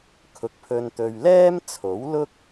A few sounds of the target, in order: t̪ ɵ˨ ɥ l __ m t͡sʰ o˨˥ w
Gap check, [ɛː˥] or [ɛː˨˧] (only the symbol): ɛː˥